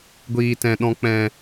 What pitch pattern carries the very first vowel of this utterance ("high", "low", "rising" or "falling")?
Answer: low